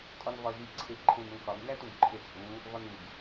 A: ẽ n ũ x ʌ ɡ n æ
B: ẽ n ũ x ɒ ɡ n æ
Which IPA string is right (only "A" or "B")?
B